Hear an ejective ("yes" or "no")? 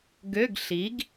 no